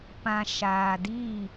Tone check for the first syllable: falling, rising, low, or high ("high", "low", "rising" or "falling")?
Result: low